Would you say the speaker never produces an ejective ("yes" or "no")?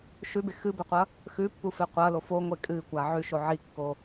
no